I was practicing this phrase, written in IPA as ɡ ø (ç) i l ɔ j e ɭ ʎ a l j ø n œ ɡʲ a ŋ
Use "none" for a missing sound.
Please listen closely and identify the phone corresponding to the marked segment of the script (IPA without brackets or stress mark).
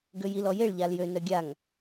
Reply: j